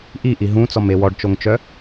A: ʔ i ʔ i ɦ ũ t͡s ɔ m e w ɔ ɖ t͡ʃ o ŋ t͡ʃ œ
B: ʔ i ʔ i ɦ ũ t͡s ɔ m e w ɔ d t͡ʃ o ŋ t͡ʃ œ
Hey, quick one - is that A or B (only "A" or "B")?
A